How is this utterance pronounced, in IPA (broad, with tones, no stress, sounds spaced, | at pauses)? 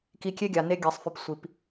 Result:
k i˧ kʲ e˦ ɡʲ a˨ n e˧ ɡʲ a˨ sˤ f y˨ p sʷ i˨ p